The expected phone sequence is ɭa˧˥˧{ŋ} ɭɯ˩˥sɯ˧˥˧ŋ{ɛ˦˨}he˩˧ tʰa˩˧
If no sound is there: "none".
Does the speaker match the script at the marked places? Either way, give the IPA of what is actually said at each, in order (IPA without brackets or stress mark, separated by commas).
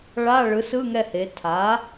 none, ɛ˦˨